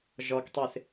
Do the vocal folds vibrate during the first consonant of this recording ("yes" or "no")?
yes